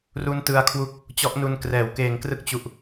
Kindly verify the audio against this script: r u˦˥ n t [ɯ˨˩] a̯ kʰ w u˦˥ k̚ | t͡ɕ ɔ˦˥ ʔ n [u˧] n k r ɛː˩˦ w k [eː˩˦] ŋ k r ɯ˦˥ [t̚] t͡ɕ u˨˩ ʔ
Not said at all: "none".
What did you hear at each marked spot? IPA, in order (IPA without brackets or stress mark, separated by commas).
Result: ɯ˧, u˧, eː˩˦, k̚